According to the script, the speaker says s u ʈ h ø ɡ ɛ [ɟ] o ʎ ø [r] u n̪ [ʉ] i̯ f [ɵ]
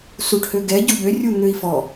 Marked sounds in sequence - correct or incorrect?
correct, incorrect: rʲ, incorrect: ø, incorrect: ɔ

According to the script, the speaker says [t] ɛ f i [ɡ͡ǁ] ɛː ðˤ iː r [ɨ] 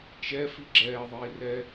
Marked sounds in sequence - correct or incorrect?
incorrect: t͡ʃ, correct, incorrect: ɛ

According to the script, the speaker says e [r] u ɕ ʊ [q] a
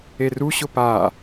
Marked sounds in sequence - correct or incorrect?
correct, incorrect: p

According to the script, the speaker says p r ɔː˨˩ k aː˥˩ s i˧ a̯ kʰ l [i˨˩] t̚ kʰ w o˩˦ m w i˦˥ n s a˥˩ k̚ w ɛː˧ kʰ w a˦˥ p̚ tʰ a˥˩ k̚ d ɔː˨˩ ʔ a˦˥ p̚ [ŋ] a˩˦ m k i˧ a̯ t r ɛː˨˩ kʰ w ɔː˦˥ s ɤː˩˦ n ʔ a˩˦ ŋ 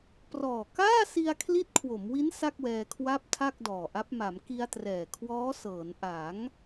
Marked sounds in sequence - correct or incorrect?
incorrect: i˦˥, incorrect: m

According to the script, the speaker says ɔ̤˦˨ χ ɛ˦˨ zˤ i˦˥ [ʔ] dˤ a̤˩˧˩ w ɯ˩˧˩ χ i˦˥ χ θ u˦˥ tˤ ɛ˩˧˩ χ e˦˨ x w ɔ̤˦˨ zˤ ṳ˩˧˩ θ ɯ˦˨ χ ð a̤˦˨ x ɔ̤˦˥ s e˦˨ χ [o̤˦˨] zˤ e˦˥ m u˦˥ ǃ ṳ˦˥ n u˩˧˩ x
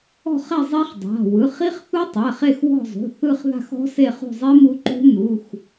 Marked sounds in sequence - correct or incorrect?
incorrect: χ, incorrect: ṳ˦˨

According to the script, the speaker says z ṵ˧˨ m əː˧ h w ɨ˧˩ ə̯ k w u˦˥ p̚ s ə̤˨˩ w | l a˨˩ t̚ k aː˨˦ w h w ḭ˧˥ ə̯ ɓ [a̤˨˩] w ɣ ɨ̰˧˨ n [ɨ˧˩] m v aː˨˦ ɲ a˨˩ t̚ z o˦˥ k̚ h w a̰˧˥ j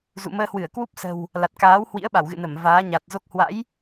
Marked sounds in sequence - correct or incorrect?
incorrect: a˧˩, incorrect: ə˧˩

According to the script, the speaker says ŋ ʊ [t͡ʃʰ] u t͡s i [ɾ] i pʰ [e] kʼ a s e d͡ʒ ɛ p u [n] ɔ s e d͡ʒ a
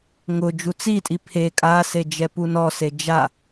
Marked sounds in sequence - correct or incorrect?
incorrect: d͡ʒ, incorrect: tʼ, correct, correct

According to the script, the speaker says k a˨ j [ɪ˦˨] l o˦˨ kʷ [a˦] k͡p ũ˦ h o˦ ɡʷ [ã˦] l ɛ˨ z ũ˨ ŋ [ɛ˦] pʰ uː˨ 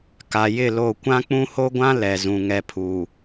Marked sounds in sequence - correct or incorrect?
correct, incorrect: ã˦, correct, incorrect: ɛ˨

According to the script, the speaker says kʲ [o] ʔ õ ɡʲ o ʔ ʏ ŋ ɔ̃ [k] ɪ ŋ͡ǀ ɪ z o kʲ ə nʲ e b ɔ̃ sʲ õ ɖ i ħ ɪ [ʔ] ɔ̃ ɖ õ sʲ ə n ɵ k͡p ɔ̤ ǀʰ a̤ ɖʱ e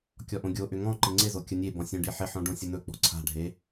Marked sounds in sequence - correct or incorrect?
incorrect: ɔ, incorrect: ǃ, incorrect: ħ

